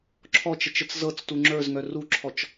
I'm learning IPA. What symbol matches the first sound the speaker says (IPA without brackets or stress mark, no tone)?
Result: ǁʰ